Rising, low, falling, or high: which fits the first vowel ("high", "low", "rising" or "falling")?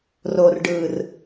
low